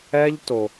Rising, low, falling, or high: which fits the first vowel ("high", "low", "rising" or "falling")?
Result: high